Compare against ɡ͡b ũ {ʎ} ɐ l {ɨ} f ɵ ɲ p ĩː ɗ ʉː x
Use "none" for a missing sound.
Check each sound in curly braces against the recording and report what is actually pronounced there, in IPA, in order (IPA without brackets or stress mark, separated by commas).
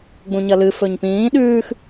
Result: ɲ, ɨ